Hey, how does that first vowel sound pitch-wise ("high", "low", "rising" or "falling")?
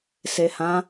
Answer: low